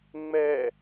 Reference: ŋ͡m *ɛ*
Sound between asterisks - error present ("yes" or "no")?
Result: no